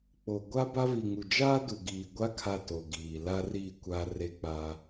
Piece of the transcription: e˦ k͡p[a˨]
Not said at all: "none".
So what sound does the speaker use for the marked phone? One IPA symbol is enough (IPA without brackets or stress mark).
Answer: a˦